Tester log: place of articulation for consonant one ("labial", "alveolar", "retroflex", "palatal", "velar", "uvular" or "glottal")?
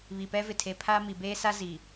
labial